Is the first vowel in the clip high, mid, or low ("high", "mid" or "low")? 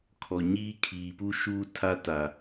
mid